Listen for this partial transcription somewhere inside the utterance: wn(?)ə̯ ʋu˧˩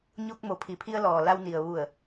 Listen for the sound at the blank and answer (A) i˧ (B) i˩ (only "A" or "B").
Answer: B